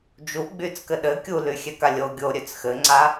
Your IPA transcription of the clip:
d͡ʒ u ɡ͡b y t͡s k ɘ ɗ ɘ kʲ u l y xʲ ɛ k a lʲ o ɡʲ o ɾʲ ø t͡s x ɘ ŋ͡ǀ a

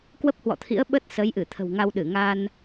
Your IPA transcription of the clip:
k w ə˦˥ p̚ h w ɔ̰˧˨ t̪ʰ ḭ˧˥ ə̯ ɓ ə˦˥ t̚ s ə˨˦ j ʔ ɨ˧˩ t̪ʰ ə̤˨˩ w ŋ a˧ w ɗ ɨ˧˩ ŋ aː˧ n

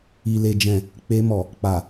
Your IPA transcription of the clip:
i˨ l e˨ d͡ʒ ɛ̃˨ | k͡p e˧ m ɔ˨ | k͡p a˨

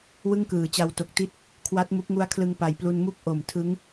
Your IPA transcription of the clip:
w ɯ˥˩ ŋ k ɯː˩˦ t͡ɕ a˧ w t o˨˩ k̚ t i˦˥ t̚ | kʰ w a˦˥ t̚ m u˦˥ k̚ ŋ u˦˥ a̯ kʰ l ɯ˧ ŋ p a˨˩ j p l u˧ n m u˥˩ k̚ ʔ o˨˩ m tʰ ɯ˦˥ ŋ

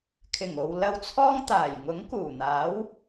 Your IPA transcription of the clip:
kʰ ɪ˨˩ ŋ o˨ w l ɐ˧ w t͡sʰ ɔː˥ ŋ t̪ aː˨˩ j ŋ ʊ˨˥ ŋ k uː˨˩ n̪ aː˨˥ w

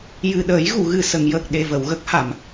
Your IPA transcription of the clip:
j ɨ˨˩ ɗ əː˨˩˦ j ɣ u˨˩˨ ɣ ɨ˨˩ s ə˨˩˨ ŋ j əː˨˩ k̚ ɗ e˨˩ v ə˨˩˨ w ɣ ə˦˥ k̚ h a˨˩˨ m

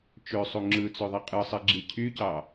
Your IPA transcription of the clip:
t͡ʃ ø sˤ u ŋ͡ǁ ɯ t͡s ø ðˤ i qʼ ɯ sˤ i ɡ͡ǁ i cʰ y c ɑ

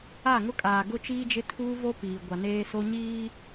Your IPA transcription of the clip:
a˦˨ ŋ ʊ˦ kʼ aː˨ ɡ ʊ˦ t͡ʃ iː˦ d͡ʒ ɪ˦ tʰ uː˦ v o˦ p iː˨ ɡʷ a˨ n eː˦ s o˦ ɲ iː˦

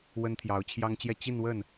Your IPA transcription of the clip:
w ə˥ n t̪ʰ j ɑ˧˥ ʊ̯ t͡ɕʰ j ɑ˥ ŋ t͡ɕ j ɛ˥˧ t͡ɕ i˥˧ n w ə˥˩ n

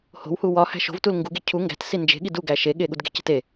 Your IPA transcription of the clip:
h o̤ w h u w ɒ h æ̤ ʃ o̤ v t u l ŋ ɡ u ɡ e cʰ u ŋ ɡ æ̤ t s i n d͡ʒ e̤ ɠ i d u ɡ æ ʃ e ɠ e ɠ u d ɡ e̤ c e̤ t e

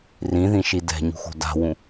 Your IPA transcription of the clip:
r ĩ ð ĩ ʃ i d ɛ̤ ɲ ṳ x o̤ d a̤ w ũ

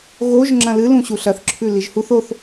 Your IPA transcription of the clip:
ɣ o ʒ ŋ͡ǁ ɐ̃ l ɨ l ũ ɕ u ɬ ɐ θ ǁʰ ʉ l i ʒ h u θ o θ

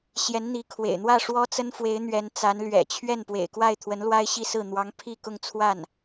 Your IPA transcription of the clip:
ɕ j ɛ˧˥ n n̪ i˧˥ kʰ w ḛ˨˩ ɪ̯ n̪ w ä˥˩ ʂ w ɔ˥ t͡s ə˥ n f w e˧˥ ɪ̯ n̪ ɥ ɛ˧˥ n t͡s a˧˥ n l ɥ ɛ̰˨˩ t͡ɕʰ ɥ ɛ˥˩ n p w ḛ˨˩ ɪ̯ k w a˥˩ ɪ̯ t̪ʰ w ə˧˥ n l w a˥ ɪ̯ ɕ i˥˧ s ɹ̩˥˩ n̪ w ɑ˧˥ ŋ pʰ i˥˧ k ʊ˥˧ ŋ t͡sʰ w a˥˩ n

